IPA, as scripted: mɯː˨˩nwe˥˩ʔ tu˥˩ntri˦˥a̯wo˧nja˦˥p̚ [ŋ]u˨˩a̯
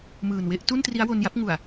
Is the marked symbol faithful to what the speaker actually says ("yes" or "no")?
yes